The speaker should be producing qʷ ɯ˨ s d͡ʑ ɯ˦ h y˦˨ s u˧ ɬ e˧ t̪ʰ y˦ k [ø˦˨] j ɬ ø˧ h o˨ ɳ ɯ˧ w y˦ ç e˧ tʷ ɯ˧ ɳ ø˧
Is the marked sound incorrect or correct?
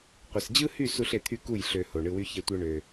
incorrect